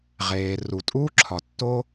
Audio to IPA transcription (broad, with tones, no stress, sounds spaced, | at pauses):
ʁ eː˩ r u˩ tʼ uː˥ ǁʰ ɒ˩ tː o˥